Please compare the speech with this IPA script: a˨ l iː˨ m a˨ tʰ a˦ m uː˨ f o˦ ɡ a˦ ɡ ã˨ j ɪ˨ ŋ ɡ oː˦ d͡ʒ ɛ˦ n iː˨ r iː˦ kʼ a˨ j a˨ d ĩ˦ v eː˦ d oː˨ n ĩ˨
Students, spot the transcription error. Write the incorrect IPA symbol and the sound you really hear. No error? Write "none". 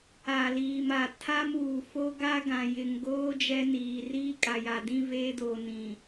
none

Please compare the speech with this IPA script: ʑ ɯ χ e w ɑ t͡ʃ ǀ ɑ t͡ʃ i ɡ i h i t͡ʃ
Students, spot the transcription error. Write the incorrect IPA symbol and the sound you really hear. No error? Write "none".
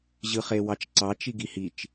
none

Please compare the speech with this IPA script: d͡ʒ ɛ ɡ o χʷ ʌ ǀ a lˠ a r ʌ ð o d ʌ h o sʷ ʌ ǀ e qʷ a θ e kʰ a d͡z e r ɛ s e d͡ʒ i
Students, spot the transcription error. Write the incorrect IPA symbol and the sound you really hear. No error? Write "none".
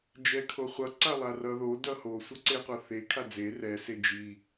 ɡ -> kʰ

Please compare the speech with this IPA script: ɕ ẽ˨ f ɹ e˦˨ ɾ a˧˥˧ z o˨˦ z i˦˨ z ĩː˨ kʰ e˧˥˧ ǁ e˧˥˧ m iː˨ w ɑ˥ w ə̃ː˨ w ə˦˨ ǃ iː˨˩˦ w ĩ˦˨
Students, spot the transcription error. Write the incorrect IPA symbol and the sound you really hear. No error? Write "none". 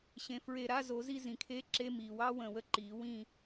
ĩː˨ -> ĩ˨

